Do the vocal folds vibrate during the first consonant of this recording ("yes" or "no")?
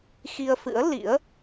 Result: no